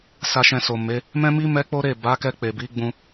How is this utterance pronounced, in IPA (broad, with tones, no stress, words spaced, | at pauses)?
sa˨ʃɛ̃˨ so˨me˨˦ | mɛ̃˦mi˦ mɛ˦k͡po˦ɾe˦˨ ba˨˦kɛ˧ k͡pe˨bi˨˦ɡ͡bũ˧